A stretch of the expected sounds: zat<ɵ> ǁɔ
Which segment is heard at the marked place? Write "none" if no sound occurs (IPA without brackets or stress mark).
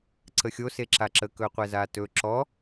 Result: ɵ